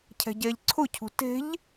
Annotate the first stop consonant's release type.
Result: aspirated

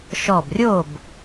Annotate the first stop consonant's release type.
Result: plain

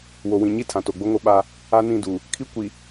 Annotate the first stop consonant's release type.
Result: aspirated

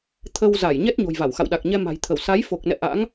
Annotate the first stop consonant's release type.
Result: aspirated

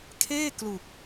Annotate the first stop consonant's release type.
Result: aspirated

